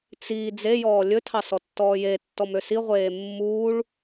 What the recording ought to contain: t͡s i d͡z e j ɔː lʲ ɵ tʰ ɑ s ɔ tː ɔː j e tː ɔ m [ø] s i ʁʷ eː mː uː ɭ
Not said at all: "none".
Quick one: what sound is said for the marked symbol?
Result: ø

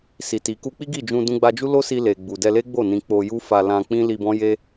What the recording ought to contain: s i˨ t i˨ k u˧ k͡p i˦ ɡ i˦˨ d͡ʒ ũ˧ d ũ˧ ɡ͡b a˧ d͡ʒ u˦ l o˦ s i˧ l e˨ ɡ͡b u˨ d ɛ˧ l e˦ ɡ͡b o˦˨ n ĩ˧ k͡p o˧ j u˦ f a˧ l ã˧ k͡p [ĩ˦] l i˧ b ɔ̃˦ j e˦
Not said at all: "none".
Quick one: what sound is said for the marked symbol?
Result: ĩ˦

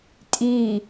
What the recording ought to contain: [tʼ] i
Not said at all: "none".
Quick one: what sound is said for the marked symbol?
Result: tʼ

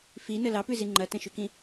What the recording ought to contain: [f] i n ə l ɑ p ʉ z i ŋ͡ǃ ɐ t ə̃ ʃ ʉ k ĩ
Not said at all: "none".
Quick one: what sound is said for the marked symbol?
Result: f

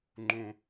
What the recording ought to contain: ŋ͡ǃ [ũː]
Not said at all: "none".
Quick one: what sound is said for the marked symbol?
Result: ũ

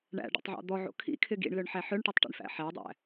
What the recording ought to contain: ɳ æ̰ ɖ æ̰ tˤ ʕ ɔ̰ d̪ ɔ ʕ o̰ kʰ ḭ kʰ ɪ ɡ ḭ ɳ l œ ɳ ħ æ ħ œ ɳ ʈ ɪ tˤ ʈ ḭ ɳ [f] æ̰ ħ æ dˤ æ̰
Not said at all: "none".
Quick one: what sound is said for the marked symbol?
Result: f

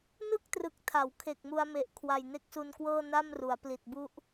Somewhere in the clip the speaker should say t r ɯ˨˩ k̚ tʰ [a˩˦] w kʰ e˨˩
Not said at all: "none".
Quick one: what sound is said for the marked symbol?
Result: a˩˦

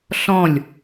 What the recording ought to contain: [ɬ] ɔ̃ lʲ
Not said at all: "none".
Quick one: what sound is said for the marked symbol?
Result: ɬ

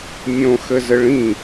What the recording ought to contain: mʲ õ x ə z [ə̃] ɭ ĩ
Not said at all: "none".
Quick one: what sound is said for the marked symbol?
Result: ə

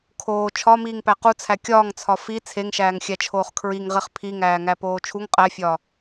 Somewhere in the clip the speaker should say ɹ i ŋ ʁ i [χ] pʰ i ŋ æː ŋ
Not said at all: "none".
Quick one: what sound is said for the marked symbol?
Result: χ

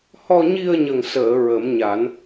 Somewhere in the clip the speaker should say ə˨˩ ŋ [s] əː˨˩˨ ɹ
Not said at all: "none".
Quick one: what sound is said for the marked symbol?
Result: s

